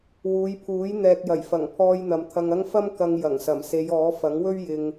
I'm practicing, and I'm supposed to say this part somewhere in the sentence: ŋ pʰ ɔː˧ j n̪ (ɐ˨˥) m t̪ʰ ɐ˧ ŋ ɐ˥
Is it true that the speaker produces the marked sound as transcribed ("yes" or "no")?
no